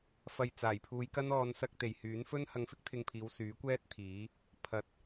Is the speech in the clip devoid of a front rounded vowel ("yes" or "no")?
no